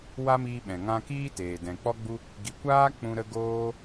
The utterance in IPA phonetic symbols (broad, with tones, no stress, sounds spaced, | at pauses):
w a˦ m iː˧ ɓ ɛ̃˨ ŋ ã˧ k iː˦ t eː˨ d ɛ̃˨ k͡p ɔ˦ ɡ͡b u˦ | ɡ i˨ kʷ aː˦ k͡p ũ˧ ɾ ə˦ ɡ oː˦